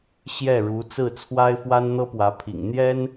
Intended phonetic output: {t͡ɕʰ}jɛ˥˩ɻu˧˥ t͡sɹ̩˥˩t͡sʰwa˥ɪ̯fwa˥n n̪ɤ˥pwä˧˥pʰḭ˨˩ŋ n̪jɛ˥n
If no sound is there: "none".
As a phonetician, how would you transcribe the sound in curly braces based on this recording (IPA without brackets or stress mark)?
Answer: ɕ